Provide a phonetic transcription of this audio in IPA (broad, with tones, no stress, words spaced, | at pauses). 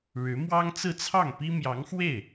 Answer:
ɻɻ̩˧˥mwɑ˥ŋ t͡sɹ̩˥˧t͡sʰɑ˥˩ŋpi˥ mjɑ˧˥ŋxwe˥˩ɪ̯